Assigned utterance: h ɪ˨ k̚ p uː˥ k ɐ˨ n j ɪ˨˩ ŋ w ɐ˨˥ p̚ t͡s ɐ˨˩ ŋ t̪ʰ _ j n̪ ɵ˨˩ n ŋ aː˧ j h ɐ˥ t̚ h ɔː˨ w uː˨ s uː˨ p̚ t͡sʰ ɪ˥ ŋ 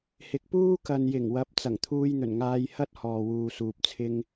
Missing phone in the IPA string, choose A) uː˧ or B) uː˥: A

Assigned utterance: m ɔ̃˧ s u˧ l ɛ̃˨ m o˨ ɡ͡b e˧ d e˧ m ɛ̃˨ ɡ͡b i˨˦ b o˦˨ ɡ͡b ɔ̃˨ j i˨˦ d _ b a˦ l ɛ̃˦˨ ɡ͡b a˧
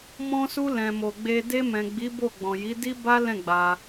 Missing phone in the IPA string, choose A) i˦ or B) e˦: A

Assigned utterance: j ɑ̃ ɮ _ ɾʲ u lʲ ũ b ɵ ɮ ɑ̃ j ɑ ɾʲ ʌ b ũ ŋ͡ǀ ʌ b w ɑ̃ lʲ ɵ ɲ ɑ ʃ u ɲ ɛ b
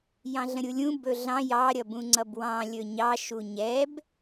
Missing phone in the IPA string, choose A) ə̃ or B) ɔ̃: A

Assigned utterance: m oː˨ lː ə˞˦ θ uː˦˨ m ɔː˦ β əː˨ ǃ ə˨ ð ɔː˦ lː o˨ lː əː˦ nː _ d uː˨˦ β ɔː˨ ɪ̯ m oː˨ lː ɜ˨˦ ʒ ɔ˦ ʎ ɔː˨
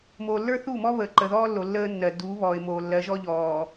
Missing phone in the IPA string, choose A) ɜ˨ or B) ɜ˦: A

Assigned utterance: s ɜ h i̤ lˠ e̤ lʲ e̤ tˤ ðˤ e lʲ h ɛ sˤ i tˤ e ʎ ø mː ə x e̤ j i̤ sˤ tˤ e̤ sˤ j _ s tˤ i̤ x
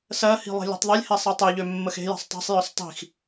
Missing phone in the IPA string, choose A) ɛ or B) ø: B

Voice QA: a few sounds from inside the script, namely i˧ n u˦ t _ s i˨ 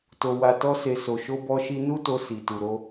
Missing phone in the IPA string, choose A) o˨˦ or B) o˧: B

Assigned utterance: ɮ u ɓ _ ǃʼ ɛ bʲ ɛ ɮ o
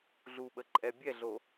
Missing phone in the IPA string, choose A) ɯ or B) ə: B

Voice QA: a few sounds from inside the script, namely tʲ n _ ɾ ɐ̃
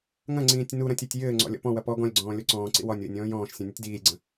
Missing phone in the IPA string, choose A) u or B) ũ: A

